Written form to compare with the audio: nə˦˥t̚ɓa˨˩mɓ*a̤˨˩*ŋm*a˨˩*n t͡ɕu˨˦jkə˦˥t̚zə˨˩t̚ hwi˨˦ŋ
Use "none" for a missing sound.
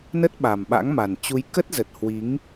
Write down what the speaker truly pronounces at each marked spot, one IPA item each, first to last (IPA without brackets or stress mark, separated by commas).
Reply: a̰˧˥, a˨˩